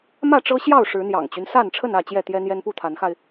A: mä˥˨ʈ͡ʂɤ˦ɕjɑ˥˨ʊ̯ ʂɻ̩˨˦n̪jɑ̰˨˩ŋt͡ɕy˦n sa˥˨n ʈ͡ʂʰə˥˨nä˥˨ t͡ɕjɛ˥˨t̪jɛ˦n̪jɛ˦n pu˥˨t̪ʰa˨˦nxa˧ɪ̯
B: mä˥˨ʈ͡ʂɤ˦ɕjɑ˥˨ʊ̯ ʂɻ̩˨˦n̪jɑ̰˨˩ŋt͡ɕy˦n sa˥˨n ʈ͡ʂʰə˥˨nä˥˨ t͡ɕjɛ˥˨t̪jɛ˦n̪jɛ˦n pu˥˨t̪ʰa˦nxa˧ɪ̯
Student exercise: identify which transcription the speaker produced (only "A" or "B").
A